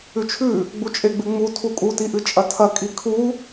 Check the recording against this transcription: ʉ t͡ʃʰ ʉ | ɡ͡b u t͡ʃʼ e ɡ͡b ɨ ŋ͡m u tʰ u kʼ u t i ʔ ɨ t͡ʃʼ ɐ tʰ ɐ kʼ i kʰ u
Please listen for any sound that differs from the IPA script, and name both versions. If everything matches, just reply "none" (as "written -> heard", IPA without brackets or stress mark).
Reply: none